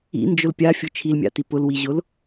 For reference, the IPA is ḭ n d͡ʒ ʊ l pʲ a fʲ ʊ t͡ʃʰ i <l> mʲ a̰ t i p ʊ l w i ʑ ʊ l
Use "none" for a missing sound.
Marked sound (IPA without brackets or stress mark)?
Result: l